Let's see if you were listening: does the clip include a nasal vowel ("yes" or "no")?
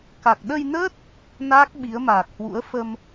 no